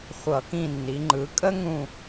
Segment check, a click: present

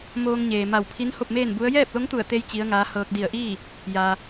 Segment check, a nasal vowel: absent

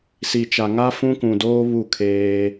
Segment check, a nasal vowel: present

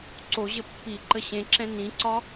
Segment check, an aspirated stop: absent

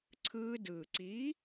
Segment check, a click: present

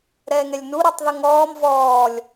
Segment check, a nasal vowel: absent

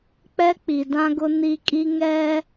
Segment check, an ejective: present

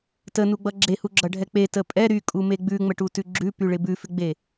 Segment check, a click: present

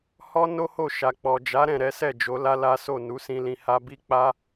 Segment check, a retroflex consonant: absent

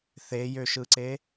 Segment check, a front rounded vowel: present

